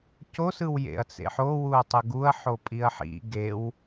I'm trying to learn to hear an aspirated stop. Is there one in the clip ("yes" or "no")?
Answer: no